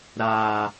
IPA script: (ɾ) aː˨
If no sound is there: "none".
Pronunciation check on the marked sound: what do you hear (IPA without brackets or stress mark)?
ɾ